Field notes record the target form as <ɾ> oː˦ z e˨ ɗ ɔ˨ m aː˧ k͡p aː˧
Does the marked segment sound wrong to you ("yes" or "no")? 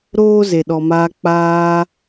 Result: no